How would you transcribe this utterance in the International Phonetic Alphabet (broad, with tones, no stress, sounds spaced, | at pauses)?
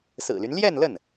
s ɹ̩˨˩ l y˦ n l j ɛ˥˧ n l ə˥˩ n